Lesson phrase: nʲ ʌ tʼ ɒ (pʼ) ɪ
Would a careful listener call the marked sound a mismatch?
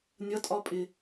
no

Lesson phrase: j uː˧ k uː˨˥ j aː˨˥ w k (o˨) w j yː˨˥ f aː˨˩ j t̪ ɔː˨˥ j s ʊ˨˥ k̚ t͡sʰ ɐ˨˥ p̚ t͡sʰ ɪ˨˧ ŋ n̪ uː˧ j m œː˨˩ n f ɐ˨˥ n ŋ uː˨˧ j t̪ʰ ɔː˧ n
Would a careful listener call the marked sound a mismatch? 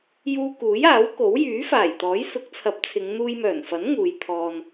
yes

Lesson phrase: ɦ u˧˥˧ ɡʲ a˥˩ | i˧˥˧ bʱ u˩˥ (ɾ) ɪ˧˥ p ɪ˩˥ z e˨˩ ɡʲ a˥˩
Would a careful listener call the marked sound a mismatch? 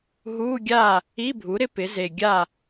no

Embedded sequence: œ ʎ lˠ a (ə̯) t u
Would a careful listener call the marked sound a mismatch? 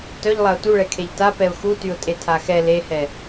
yes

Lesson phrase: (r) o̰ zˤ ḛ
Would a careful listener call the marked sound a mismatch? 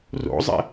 no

